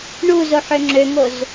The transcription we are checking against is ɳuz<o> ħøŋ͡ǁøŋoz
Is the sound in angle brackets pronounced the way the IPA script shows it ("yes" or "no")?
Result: yes